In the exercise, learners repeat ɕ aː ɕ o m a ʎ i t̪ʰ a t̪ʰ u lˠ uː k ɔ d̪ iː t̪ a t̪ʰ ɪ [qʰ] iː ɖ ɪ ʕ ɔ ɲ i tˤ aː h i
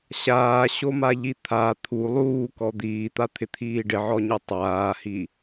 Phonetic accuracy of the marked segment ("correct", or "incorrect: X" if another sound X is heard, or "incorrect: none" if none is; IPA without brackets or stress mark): incorrect: t̪ʰ